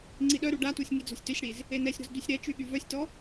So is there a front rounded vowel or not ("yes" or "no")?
yes